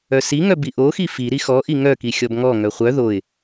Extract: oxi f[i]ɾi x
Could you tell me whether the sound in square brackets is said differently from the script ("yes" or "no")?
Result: no